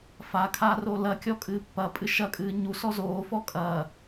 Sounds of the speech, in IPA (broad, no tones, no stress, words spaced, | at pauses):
fa kʰarolɐkʲɔ kʼɨːpːɐpʼɨ ʃɐkʼɨː ɲu sɔzoːfɔ kʼɐ